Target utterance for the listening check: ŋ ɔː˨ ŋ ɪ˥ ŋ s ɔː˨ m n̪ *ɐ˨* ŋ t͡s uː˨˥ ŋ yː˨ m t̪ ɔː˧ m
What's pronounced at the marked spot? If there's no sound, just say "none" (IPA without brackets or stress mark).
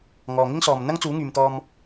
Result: ɐ˥